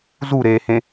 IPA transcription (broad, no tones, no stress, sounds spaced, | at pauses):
z u ɾ eː h ẽ